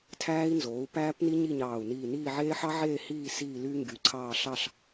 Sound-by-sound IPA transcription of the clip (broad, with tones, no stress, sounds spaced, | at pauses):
tʰ æː˦˥ i̯ n z oː˩˥ u̯ p æː˦˥ p n i˦˥ ɲ i˥˨ ɲ ɑː˧˩ u̯ n iː˧˩ n iː˥˨ ʕ eː˦˥ ħ ɑ˦˥ ʕ eː˥˨ h iː˥˨ s iː˥˨ l y˦˥ ŋ ɡ y˩˥ ǀʰ ɑː˥˨ ɬ ɑ˥˨ ɬ